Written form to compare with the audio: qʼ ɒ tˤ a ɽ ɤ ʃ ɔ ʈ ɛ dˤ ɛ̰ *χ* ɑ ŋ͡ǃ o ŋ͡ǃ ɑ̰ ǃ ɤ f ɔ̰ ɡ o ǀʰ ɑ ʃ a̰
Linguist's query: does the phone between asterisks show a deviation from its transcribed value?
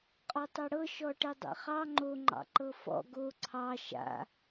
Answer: no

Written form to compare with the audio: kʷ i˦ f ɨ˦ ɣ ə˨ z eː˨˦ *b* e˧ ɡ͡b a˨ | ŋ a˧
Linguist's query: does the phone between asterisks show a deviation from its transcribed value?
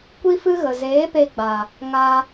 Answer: yes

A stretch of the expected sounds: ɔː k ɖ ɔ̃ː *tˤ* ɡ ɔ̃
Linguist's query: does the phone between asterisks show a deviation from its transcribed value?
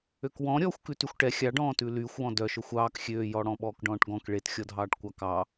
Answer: yes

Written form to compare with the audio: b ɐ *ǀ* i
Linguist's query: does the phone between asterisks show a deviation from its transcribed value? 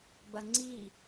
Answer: yes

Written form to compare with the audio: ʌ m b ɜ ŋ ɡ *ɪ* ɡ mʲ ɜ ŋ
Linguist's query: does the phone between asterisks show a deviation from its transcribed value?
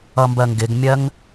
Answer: no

